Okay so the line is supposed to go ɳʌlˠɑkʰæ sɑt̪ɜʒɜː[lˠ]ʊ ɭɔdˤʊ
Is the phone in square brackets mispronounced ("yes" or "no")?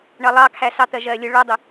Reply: yes